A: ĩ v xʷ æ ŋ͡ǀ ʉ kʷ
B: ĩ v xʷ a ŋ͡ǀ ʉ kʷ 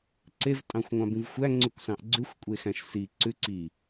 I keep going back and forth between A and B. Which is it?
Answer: A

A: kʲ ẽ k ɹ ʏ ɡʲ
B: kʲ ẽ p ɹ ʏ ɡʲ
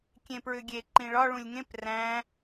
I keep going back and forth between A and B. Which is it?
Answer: B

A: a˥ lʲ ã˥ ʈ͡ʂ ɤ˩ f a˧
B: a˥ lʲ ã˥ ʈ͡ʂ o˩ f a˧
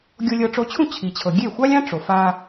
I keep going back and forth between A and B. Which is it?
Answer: B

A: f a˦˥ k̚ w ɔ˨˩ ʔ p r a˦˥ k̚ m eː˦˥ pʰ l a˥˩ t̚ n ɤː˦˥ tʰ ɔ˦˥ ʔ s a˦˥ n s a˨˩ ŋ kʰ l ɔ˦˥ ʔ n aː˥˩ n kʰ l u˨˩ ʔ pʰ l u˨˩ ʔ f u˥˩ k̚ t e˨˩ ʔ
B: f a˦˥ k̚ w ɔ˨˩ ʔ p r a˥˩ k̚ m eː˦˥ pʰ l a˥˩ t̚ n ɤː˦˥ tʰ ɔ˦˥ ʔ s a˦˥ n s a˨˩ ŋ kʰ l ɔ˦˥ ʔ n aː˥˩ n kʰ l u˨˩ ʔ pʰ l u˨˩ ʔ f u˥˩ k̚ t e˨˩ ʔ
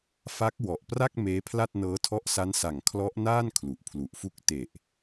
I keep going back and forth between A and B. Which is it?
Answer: B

